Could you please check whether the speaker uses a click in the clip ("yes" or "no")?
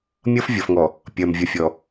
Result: no